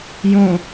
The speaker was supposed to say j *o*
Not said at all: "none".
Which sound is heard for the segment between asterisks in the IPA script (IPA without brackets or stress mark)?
õ